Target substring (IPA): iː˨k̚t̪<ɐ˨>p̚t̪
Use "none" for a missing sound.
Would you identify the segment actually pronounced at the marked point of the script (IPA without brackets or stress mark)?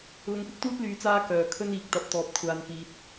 ɐ˨˥